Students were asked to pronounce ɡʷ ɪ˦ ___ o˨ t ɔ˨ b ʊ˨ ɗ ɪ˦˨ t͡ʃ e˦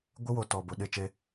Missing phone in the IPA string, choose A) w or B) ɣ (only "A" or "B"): A